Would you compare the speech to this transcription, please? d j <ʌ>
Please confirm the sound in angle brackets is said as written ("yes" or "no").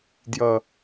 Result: yes